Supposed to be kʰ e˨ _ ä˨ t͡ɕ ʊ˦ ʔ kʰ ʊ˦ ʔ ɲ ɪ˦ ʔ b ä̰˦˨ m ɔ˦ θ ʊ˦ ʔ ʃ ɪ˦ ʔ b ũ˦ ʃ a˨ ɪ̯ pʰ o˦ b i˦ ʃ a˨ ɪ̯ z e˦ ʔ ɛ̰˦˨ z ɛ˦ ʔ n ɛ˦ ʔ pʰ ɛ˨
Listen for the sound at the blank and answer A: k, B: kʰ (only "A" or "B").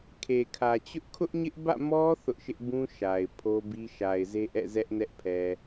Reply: B